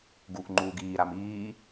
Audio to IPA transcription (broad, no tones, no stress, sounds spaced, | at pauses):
ɡ u ʔ ŋ͡ǃ uː ɡ iː ɾ a m iː